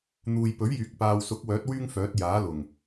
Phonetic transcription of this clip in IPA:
n̪uː˨jpɵ˨˥ɥjyː˨k̚ paː˨wsʊ˨˥k̚wœː˨˥t̚ wyː˥ŋfœː˨˥t̚ jaː˨˥lʊ˨˩ŋ

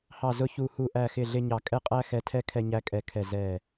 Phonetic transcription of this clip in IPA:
hɑ˦˨ zʊ˥çu˦˨ hu˦˨ʔæ˦˨xɪ˦˨ ɮɪ˥ɲɑ˦˨ kʼɛ˥qʼæ˥xɛ˦˨tʰɛ˥ kʰɛ˥ɲæ˥kʼɛ˦˨kʰɛ˦˨ zɛ˦˨

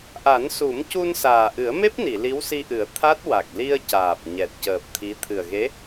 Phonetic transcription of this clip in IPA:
ʔa˨˩˦nsu˨˩˦mcu˧n saː˨˩ʔɨ˨˩˦ə̯me˦˥p̚ni˨˩˨ li˧˥wsi˧ʔɨ˨˩˦ə̯ t̪ʰa˦˥t̚ wa˨˩k̚li˧ə̯caː˨˩p̚ ɲɛ˨˩t̚cəː˨˩p̚ t̪ʰi˧˥ t̪ʰɨ˨˩ə̯ɣe˧˥

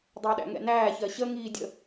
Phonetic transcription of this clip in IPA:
dˤəːɗæ̰ŋɛ̰næː çɜɕə ŋiːdʲə̰

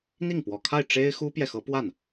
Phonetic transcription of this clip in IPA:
n̪i˥˩ŋpwɔ˨˩kʰa˥˩ɪ̯ ʈ͡ʂe˥ɪ̯xu˥pjɛ˨ xɤ˧˥pwa˥˩n

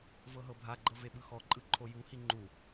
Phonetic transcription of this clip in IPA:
vɤɦɤbʱaɡ͡ǃɤ veɓɯxɔǃʼɯ ǃʰojuhi ŋ͡ǃu

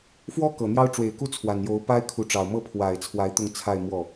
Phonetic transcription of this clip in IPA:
fwɔ˥ kɤ˨˩n̪jɑ˥ʊ̯ ʈ͡ʂwe˨˩ɪ̯ku˥˩ t͡sʰwa˨˩njo˧˥ʊ̯pa˥ɪ̯ kʰu˧˥ʈ͡ʂɑ˨˩ʊ̯ mɤ˥˩pʰwa˨˩ɪ̯t͡sʰwa˧˥ɪ̯ t̪ʊ˥˧ŋt͡sʰa˥˧ɪ̯mwɔ˥˩

